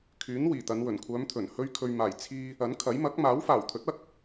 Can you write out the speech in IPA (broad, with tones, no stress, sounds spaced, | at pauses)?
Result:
kʰ yː˨˥ n w iː˨˩ t̪ ɐ˨˧ n w ɵ˨˩ n kʷʰ œː˨˧ m t̪ʰ ɵ˨˩ n h ɵ˧ ɥ kʰ ɵ˨ ɥ m aː˨˩ j t͡sʰ iː˧ | ɐ˨˥ n kʰ ɐ˨˥ j m ɐ˨˥ k̚ m aː˨˥ w f aː˨˩ w t̪ʰ ɵ˨˥ t̚ ɐ˥ k̚